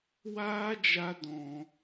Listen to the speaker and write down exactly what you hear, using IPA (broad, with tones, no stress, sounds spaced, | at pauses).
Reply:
w aː˦ d͡ʒ a˧ d ɔ̃˧